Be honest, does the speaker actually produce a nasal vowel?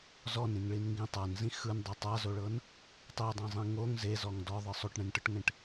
yes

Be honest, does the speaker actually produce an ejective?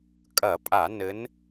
yes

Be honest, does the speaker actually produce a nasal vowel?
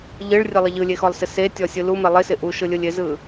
no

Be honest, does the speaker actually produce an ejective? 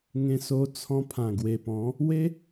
no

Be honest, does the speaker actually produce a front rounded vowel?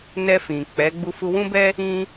no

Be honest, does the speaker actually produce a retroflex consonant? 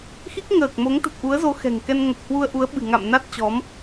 no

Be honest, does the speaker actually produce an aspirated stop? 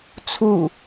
yes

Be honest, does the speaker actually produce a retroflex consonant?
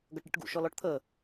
yes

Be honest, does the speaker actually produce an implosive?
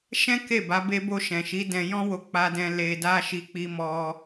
no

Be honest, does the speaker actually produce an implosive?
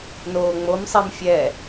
no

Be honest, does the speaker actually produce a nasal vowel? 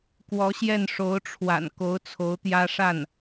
no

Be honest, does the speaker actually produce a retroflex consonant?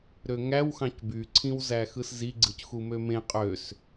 no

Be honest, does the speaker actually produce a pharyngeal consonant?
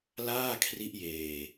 no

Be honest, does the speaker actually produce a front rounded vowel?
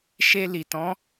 no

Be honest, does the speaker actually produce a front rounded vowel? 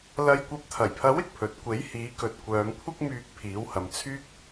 yes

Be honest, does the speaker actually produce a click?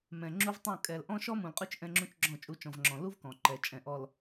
yes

